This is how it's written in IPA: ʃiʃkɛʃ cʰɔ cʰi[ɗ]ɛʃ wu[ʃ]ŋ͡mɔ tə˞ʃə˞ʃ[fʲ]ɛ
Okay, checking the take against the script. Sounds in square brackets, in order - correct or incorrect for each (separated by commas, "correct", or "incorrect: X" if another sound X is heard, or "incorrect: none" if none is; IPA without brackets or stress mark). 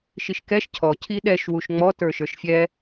correct, correct, correct